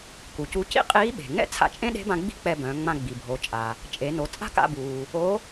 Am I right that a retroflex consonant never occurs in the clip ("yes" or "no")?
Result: yes